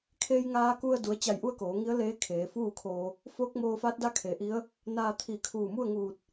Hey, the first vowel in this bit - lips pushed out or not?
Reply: no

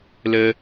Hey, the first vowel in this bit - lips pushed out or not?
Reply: no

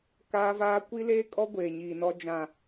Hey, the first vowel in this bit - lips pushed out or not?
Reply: no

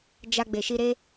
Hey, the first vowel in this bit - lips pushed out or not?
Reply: no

